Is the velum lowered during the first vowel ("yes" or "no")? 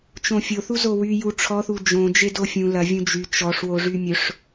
yes